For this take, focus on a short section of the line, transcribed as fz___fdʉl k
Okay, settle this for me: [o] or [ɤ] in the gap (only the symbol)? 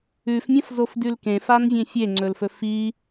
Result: o